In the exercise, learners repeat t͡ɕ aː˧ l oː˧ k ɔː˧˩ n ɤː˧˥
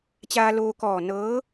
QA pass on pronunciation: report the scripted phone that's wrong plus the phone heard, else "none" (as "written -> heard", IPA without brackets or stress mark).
none